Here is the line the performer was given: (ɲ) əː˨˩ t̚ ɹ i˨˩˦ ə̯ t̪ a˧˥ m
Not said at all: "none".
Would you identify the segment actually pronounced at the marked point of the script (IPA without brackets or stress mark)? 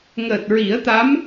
ŋ